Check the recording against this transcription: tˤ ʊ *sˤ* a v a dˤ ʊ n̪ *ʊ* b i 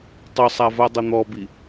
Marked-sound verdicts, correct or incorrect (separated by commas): correct, incorrect